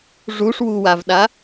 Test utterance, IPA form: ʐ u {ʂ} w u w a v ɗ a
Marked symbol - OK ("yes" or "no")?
yes